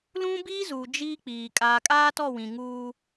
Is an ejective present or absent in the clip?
present